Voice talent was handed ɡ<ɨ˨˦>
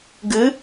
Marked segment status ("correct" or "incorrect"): correct